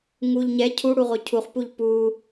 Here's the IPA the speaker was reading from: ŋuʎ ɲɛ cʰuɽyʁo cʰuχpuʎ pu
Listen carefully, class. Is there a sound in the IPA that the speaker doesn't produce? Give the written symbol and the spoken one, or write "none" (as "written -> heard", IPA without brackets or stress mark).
y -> u